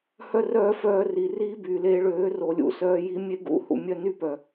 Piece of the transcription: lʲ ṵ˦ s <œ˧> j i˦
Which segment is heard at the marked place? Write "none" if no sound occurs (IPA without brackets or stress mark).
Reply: œː˧